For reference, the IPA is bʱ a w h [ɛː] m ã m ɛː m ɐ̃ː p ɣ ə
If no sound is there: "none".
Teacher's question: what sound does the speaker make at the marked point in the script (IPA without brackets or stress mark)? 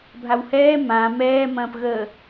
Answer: ɛː